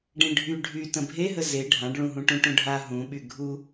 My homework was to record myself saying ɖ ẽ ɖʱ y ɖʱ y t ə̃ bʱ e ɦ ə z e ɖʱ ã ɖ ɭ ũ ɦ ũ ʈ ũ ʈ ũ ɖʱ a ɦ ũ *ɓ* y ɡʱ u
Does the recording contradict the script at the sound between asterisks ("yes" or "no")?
no